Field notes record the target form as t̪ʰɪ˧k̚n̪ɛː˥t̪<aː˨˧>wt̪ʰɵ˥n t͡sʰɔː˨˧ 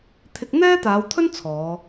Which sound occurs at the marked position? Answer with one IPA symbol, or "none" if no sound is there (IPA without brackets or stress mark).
aː˨˧